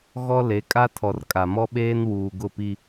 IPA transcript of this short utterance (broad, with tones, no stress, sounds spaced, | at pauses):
ɣ ɔ˦ l e˨˦ kʼ a˦ tʰ ɔ˨ r kʼ a˨ m ɔ˦ ɓ eː˦ n w uː˨ ɡ ʊ˦˨ p i˦